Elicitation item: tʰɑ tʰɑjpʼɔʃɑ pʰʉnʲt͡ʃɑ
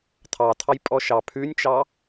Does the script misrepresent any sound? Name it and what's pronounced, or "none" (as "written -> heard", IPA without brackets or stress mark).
none